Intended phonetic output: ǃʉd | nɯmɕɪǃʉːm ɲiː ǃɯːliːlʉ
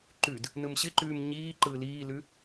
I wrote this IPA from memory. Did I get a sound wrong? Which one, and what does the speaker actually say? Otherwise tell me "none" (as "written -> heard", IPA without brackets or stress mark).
none